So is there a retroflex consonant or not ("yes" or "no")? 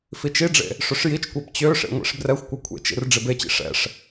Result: yes